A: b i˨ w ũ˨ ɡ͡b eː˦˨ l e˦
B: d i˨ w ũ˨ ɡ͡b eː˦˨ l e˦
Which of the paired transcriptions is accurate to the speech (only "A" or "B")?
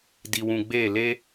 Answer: B